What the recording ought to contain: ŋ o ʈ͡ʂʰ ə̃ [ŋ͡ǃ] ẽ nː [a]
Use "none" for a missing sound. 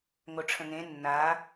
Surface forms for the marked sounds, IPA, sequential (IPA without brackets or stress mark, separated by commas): ŋ, a